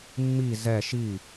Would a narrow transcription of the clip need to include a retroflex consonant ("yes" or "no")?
no